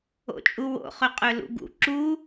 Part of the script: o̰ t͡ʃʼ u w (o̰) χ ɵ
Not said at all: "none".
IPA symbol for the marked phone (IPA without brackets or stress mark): o̰